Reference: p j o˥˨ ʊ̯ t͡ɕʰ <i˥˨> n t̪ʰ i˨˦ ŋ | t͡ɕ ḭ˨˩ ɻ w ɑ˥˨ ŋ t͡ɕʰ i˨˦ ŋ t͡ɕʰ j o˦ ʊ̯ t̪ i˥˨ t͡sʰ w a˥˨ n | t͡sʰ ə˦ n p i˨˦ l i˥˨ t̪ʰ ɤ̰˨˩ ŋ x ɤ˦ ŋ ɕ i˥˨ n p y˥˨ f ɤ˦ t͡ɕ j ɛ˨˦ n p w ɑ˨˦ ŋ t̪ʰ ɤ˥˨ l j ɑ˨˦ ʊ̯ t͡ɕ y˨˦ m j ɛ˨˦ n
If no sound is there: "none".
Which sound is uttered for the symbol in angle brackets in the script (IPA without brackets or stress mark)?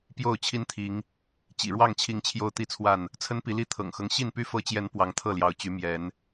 i˦